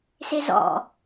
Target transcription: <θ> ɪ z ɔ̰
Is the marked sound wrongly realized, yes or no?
yes